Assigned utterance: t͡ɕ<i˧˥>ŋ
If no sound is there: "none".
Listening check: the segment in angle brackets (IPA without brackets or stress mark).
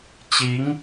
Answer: i˧˥